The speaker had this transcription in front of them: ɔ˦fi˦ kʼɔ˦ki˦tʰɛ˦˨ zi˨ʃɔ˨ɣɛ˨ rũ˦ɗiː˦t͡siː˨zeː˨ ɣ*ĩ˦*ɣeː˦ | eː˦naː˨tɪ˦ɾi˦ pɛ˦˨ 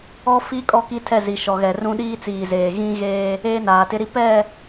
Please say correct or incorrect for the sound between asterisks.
correct